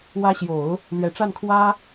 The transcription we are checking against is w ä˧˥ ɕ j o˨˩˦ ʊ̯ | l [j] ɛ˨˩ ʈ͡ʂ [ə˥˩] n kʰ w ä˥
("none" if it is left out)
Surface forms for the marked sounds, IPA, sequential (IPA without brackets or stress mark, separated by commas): ɥ, a˥˩